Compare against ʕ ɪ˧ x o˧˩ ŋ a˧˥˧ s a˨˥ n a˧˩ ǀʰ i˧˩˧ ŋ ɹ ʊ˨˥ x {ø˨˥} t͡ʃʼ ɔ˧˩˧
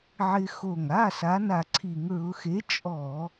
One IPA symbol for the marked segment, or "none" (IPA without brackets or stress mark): e˨˥